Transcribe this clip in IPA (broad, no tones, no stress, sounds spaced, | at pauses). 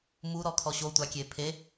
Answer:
m u ɾ ɔ kʰ ɔ ɕ o tʷ a kʲ e pʰ e